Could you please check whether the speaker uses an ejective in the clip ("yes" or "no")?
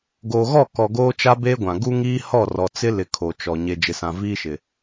no